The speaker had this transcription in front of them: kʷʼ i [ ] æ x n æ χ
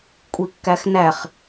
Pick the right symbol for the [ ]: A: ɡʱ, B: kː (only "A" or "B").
B